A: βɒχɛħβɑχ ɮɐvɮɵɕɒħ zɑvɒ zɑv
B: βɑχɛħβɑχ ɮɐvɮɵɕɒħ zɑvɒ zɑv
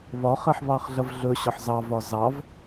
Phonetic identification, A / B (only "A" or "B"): A